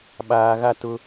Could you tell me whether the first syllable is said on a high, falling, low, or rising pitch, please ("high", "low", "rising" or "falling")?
low